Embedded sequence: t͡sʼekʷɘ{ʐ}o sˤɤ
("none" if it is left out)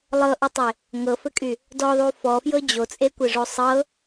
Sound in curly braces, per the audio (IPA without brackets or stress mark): ʐ